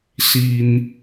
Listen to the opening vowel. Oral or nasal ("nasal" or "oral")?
oral